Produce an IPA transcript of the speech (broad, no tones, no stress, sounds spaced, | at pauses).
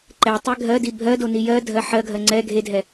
ǃ ɛ tˤ e ɡʱ ɜ d i bʱ ɜ d o n i j ɜ dʱ ɜ ħ ɜ ɡʱ ɜ ŋ͡ǀ ɛ ɡʱ e dʱ ɛ